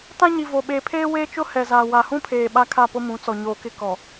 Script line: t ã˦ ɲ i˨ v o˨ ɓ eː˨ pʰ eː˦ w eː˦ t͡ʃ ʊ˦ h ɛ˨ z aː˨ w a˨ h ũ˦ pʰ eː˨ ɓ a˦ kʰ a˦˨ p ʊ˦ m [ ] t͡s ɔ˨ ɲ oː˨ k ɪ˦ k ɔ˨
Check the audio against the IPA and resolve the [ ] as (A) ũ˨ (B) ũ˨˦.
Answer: B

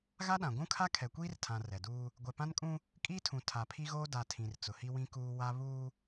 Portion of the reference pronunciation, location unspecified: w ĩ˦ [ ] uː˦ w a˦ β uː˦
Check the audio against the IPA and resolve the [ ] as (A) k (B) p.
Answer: A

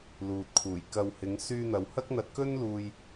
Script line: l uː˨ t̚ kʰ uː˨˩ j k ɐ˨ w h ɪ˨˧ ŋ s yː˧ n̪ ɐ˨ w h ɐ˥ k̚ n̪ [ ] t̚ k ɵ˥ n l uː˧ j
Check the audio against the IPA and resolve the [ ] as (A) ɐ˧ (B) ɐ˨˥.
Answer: A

